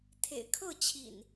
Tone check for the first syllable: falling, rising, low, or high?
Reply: low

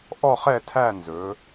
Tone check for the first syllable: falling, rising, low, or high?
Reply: falling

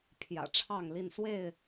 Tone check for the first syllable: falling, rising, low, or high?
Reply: low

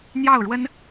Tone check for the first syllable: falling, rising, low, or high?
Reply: falling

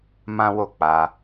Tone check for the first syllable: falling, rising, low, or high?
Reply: high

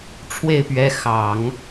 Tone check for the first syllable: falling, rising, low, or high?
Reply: falling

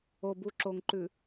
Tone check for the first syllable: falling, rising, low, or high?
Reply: low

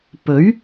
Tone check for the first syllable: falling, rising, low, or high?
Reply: rising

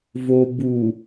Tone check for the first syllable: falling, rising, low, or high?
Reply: low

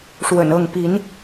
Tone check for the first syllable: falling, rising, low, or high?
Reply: low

